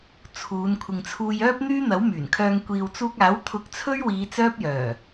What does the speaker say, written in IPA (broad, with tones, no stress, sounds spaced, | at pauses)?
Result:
t͡sʰ uː˨˧ n kʷʰ ɪ˨ ŋ t͡sʰ uː˧ j œː˥ p̚ n̪ yː˥ n̪ ɐ˨˥ w m yː˨˩ n kʰ œː˧ ŋ kʷ iː˨ w t͡s uː˧ k̚ aː˨˥ w t̪ʰ ʊ˧ k̚ t͡sʰ ɵ˥ ɥ w iː˨˧ t͡s œː˥ p̚ j œː˨˩